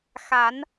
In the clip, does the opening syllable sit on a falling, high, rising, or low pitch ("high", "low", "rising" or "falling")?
rising